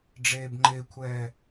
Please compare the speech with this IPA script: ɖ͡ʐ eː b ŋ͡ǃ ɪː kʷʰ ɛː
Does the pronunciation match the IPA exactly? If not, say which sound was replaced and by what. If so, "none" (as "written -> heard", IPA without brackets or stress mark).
none